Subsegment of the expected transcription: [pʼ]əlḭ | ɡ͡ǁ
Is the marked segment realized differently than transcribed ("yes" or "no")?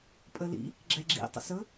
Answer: no